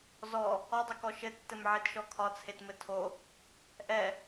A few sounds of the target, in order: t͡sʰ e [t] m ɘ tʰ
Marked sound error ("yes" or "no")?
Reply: no